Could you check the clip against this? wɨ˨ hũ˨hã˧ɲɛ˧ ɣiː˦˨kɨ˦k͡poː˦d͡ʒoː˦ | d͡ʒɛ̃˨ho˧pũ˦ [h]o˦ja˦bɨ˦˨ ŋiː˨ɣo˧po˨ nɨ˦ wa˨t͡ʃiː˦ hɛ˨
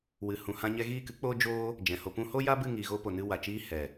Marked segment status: correct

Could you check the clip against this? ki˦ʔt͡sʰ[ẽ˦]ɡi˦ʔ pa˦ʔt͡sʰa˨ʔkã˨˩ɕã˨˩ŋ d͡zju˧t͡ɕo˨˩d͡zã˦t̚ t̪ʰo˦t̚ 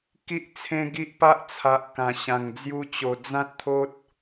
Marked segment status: correct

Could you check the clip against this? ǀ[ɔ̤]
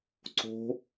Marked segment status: incorrect: o̤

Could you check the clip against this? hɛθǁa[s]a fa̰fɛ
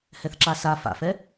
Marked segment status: correct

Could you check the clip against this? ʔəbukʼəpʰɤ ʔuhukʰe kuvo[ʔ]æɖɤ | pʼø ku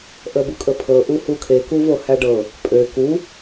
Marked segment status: incorrect: h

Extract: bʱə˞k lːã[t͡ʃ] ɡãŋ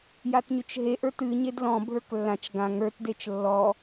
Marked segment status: correct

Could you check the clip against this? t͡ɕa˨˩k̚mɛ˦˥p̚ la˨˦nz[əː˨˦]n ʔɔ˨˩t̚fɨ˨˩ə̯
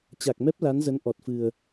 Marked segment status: incorrect: ə˨˦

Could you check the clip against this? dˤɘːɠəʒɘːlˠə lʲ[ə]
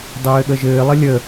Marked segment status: correct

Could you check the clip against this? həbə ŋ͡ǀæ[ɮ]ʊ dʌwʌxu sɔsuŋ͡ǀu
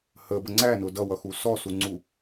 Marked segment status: incorrect: n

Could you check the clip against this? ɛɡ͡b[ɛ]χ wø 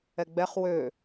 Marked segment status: correct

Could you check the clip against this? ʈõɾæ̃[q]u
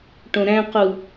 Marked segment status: correct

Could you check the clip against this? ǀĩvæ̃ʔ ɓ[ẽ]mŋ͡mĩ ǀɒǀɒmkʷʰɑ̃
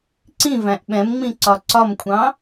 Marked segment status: incorrect: ɛ̃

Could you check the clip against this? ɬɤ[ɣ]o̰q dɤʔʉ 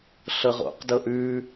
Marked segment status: incorrect: ʁ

